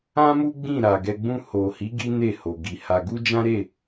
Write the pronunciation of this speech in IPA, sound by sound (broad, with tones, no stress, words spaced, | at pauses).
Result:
ã˦mu˦ ɡ͡bĩ˦˨ɾa˨ɡɛ˧ ɡ͡bũ˧ho˨hi˨˦ ɡi˦ne˦˨ho˨ ɡi˨ ha˧ ɡu˦d͡ʒã˦ɾe˦˨